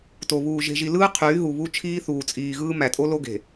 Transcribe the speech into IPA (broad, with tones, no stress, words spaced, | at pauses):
to˨βuː˨ ʒe̤˨ʒi˨lɯː˦ qʰyː˨˦ɦu˨βu˦ t͡ʃʰiː˦ θuː˨t͡sʼiː˨ɣɯː˦ mæ˨tʼo˦lo˦ɡe̤˨